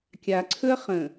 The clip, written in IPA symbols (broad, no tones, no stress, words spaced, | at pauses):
kʲaǀʰɵɐ̯ χə̃